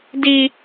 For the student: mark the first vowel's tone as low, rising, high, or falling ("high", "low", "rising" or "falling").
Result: high